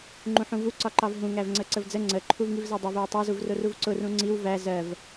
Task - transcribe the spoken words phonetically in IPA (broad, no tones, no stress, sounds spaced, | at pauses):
ŋ͡ǃ ũ ħ ũ v u ǀ ɒ ǃ ɑ v ɦ ũ ŋ æ v ŋ͡ǀ ə ǀ ə v d͡z ə ŋ͡ǀ ə ǃʰ u v ŋ i v z ɑ dˤ ɜ v ɜ w tˤ ɑ z u v r ʊ r u v ǀ ʊ r ũ ŋ͡ǀ i w v æ z ɜ v